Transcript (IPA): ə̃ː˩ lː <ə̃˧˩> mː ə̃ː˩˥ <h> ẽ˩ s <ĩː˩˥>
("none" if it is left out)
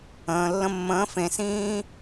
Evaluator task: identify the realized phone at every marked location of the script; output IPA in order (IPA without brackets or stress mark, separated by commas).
ə̃˧˩, f, ĩː˥